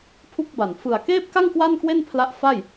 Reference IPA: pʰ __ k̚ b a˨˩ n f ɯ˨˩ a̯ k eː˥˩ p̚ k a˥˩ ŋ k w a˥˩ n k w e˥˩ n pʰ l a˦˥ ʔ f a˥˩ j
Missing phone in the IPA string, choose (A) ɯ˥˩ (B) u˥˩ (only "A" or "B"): B